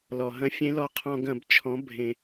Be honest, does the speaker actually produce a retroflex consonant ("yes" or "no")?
no